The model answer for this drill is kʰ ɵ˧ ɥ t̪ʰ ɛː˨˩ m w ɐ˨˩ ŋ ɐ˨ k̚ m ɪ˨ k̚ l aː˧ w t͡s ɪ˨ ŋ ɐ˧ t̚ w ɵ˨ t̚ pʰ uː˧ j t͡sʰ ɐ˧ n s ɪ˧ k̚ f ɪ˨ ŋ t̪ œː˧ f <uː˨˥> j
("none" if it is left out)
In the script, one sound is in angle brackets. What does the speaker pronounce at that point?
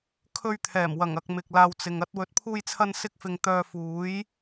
uː˨˥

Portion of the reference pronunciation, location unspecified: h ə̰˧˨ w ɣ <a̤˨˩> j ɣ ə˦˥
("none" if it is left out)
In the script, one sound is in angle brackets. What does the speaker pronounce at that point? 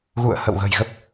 ə̤˨˩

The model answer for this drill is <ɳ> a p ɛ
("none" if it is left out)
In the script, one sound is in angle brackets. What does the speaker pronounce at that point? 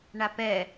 ɳ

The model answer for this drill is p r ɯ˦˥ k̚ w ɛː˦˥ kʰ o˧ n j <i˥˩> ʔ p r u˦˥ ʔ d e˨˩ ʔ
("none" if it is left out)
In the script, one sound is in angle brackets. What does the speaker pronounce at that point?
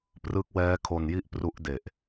i˥˩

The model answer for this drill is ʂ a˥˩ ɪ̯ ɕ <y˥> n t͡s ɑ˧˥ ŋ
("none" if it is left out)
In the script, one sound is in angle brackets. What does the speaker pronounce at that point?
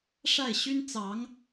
y˥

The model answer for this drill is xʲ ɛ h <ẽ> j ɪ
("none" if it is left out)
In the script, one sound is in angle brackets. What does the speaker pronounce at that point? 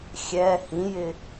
ĩ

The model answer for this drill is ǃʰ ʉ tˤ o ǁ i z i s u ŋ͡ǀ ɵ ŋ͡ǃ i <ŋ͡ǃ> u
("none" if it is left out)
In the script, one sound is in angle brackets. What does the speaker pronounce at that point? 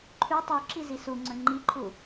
ǃʰ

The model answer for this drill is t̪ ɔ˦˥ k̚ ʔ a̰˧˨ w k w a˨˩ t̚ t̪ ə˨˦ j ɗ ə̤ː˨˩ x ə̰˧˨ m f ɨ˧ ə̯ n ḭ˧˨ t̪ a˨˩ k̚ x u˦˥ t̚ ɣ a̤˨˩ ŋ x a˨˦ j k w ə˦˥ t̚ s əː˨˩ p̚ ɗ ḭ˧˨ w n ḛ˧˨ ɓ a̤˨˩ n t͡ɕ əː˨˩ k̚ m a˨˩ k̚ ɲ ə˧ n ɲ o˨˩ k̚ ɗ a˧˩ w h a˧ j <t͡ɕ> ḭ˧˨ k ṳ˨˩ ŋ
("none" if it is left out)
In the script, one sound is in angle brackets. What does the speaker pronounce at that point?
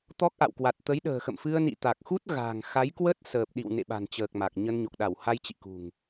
t͡ɕ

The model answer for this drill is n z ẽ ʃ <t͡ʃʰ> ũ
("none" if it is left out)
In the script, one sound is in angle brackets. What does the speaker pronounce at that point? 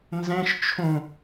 t͡ʃʰ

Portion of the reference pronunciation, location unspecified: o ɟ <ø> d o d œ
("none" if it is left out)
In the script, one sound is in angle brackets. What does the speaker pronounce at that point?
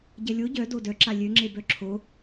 œ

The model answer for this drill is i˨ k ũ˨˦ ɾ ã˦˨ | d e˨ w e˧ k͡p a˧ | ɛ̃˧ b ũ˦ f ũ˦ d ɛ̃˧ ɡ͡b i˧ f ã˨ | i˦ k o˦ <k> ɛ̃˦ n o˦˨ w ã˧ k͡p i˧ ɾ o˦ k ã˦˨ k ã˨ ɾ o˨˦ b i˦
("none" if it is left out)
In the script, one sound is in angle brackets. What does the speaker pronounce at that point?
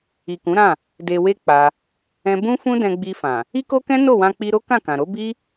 k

